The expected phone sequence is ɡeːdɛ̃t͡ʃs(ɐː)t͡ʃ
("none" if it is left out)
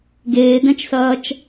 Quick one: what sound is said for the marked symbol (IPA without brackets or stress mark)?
ɐː